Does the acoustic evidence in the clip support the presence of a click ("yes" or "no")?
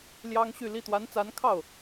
no